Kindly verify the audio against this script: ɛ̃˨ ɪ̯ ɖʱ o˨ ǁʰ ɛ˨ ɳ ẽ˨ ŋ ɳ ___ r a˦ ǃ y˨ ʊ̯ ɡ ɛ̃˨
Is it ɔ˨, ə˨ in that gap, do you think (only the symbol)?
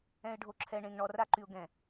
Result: ɔ˨